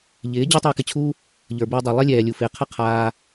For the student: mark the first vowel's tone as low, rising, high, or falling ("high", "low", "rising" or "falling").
rising